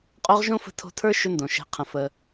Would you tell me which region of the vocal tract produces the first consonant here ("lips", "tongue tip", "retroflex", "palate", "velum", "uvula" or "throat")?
uvula